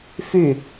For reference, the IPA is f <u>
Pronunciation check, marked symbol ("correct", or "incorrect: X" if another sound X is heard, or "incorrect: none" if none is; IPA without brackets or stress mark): incorrect: y